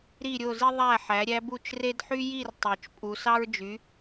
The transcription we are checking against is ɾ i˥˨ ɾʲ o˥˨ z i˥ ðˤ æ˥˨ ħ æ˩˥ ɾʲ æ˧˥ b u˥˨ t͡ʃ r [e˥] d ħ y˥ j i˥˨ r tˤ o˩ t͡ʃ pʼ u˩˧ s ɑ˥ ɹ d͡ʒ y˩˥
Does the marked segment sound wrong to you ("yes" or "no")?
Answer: no